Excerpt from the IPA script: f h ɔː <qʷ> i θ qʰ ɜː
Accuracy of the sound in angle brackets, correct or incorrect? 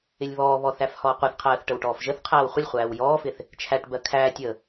correct